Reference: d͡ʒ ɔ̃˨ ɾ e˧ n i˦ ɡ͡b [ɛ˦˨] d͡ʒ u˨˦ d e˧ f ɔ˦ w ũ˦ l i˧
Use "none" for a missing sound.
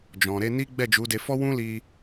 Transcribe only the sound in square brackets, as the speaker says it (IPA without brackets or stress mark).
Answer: ɛ˦˨